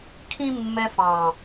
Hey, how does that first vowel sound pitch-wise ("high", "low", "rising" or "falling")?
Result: high